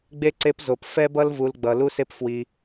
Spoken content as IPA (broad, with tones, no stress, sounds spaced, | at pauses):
ɡ͡b e˦ ǀ e˦ p z o˧ p f ɛ˦ b ʌ˦ l v u˧ l ɡ͡b ʌ˧ l u˦ s e˦ p f w i˧